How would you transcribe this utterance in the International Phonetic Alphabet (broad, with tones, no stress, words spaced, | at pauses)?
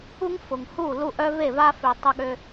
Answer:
u˦ŋfʊ˨ŋhu˦˨ lu˦ʔ œ˦ve˦˨va˦fø˨ tˤʊ˦ ɠø˦